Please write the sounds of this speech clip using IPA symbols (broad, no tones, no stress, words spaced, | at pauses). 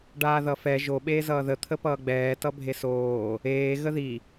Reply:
ɖaːðʌfɛ ʒo ɓeːzʌːðə t̪ʰəpʌːɡ͡bɛː tʌbʱesoː | eː ɣəði